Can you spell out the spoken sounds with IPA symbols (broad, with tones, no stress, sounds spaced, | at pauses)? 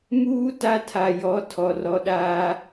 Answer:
m uː˦ t a˦ tʰ a˨ j ɔ˨˦ tʰ ɔ˨ r ɔ˨ ɗ aː˦